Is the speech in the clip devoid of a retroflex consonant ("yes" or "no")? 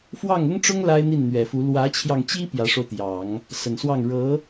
no